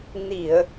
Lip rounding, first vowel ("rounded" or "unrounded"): unrounded